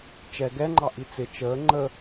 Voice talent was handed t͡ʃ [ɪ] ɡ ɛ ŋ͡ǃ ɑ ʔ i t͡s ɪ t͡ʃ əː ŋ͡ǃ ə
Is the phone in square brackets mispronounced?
yes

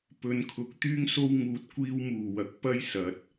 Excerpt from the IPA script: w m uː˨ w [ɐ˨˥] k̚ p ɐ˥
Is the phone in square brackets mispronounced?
no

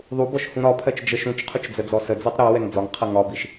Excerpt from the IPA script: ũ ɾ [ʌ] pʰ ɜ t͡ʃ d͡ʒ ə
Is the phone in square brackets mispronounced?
yes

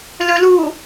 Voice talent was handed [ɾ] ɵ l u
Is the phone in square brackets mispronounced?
yes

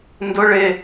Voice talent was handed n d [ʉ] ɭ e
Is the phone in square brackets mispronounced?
yes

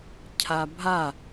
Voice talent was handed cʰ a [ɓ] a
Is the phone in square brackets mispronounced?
yes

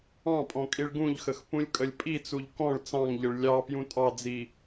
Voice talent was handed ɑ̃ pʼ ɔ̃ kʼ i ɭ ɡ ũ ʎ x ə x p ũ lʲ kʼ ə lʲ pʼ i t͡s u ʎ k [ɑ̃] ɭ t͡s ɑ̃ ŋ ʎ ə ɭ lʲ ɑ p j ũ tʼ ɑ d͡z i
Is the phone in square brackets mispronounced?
yes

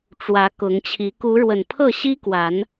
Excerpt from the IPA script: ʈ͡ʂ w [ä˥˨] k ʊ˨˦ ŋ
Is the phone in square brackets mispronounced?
yes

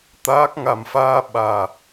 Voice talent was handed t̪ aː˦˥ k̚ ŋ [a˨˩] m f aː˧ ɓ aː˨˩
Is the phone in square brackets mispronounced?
no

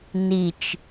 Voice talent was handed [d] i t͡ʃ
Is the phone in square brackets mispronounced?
yes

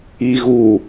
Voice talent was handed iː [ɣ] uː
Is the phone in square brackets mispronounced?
no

